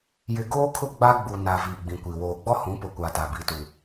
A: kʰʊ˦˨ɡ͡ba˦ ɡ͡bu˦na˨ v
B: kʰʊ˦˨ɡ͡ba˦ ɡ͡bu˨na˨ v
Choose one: B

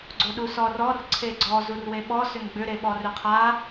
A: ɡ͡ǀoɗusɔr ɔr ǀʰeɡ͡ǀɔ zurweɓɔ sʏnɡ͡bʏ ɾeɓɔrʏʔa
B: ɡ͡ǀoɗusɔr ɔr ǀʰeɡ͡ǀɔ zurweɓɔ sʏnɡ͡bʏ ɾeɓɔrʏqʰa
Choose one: B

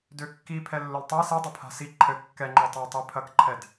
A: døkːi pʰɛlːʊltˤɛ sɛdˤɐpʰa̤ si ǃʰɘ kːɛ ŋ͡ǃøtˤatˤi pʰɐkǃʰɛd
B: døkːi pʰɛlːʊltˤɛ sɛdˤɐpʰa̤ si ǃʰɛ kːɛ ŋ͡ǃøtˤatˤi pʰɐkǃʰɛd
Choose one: A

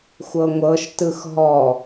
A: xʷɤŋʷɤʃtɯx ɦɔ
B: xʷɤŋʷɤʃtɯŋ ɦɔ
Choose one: A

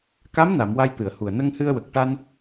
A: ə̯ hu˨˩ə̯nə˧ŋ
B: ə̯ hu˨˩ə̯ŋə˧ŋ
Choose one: A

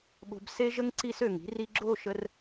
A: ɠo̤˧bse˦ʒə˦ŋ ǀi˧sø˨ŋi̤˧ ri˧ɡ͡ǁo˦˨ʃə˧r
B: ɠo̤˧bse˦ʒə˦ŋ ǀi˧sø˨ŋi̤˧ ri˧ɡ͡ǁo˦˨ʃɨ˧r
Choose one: A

